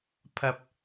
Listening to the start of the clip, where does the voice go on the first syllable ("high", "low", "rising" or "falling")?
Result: low